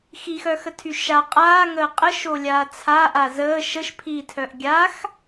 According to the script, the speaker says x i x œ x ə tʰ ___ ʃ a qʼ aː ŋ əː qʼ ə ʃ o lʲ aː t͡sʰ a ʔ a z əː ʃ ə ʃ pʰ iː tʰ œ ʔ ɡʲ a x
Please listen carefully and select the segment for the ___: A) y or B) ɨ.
A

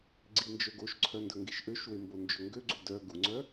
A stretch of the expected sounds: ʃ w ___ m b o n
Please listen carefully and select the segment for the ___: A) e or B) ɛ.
A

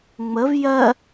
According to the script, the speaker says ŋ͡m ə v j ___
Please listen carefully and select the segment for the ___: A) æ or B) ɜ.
B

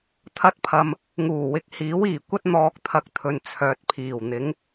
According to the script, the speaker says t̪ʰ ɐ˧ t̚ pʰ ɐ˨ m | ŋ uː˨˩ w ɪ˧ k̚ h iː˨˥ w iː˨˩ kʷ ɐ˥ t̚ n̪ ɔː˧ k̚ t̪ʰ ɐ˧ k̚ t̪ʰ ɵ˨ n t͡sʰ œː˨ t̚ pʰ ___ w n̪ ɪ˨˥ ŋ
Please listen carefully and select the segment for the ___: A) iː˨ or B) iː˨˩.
B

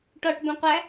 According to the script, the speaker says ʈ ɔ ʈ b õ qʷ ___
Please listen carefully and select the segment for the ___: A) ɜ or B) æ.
B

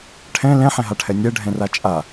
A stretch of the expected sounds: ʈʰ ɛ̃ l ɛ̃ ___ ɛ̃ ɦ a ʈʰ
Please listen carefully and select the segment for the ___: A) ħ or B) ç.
A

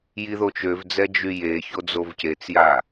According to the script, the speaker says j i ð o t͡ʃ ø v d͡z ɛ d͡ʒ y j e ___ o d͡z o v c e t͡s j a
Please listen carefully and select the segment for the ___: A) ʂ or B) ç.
B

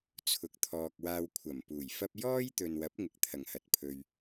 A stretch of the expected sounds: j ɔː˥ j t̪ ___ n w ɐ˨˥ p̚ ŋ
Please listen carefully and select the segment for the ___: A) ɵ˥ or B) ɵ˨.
B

